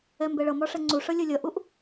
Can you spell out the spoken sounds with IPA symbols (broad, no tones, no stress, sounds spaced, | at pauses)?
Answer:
ɛ m b ɛ ɭ ʌ m ɒ ʂ ɛ ŋ͡ǀ u ʂ ʌ lʲ ʌ lʲ ʌ ʔ u ʔ